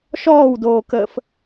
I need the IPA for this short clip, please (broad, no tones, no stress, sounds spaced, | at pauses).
ʃ ɔː w d oː k əː f